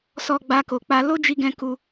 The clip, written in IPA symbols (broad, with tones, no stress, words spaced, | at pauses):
sɔ˧ɡ͡ba˧ko˨k͡pa˧ lo˦d͡ʒi˧ɡɛ̃˧ ku˧